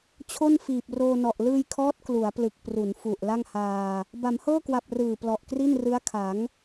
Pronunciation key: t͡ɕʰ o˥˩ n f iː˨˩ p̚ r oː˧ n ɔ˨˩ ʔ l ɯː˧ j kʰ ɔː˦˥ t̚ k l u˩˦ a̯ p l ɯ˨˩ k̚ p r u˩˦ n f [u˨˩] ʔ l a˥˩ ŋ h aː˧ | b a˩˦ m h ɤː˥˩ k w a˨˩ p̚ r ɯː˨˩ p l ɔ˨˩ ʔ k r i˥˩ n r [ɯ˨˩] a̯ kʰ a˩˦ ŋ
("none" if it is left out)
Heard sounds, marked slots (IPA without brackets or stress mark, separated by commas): u˨˩, ɯ˦˥